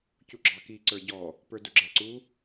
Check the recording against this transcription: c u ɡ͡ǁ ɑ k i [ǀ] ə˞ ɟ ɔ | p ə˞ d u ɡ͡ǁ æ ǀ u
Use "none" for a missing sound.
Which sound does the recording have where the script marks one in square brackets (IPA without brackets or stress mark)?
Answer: ǀ